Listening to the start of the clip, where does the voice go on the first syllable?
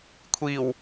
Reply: low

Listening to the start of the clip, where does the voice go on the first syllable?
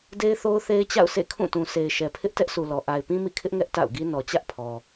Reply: high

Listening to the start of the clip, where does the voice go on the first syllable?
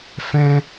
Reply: high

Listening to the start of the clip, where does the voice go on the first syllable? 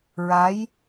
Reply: rising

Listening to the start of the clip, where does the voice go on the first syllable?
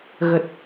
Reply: low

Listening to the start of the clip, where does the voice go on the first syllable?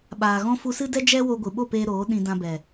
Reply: low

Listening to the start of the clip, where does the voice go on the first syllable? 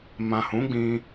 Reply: low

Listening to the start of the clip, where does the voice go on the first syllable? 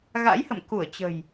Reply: rising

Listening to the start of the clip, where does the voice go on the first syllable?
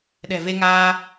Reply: low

